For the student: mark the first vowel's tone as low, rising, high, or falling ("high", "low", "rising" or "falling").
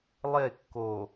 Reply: falling